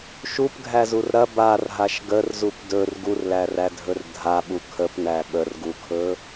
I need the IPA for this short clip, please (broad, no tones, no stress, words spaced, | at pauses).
ʃupɡʱæzur ɾɐ barɦaʃ ɡərzup dɵr ɡurlærædʱɵr dʱaɓu kʰəpnæ ɓərɡukʰɵ